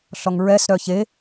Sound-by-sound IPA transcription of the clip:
ɬ ɔ ŋ ɹ ɛ s ɾ œ ç e

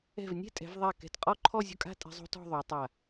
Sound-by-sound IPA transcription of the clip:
ɛ̤˧˩ v nʲ ɛ̤˥˧ tʼ ɛ̤˩˧ v ðˤ a˧˩ k ɛ̤˧˩ t qʼ ɔ˥˧ ǃʰ ɔ˥˧ zʲ o̤˥˧ kʼ a̤˥˧ tʼ ɛ̤˧ zˤ o̤˥ t ɔ̤˥˧ ðˤ o˩˧ tˤ a˧˩

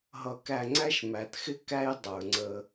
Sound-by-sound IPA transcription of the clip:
ɦ ʌ˧ k æ˧ ŋ͡ǀ æ˦ ʃ m æ˨ t x ɪ˦ k æ˦ j dˤ ə˞˨ ŋ͡ǀ ə˧

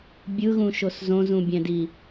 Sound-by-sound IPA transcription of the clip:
bʲ ɯ ɣ ũ ʃ o s z õ z ũ bʲ ɛ̃ d i

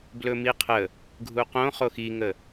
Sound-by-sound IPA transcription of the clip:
b l ɵ m i qʰ ə | ɡʱ u q õ χ o x i ŋ ə

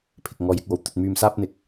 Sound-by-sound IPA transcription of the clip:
pʰ ɪ˨ k̚ ŋ ɔː˨˧ j ɪ˧ k̚ w o˨˥ w t̪ ɵ˧ t̚ m yː˧ m s aː˥ p̚ n̪ ɪ˨˥ k̚

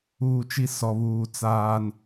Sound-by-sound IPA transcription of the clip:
uː˨ t͡ʃ i˦ s ɔ˨ β uː˨ t͡s aː˨ n

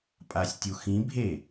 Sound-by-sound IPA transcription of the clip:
pʼ a sʲ tʲ u x ĩ bʱ e

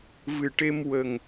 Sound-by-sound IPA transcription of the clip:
v ɨ˨˩ ʈ e˧ m w ə˨˩ ŋ

